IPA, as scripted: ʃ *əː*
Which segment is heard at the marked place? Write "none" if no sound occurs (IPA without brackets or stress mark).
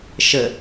ə